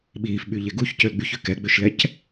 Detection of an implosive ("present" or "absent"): present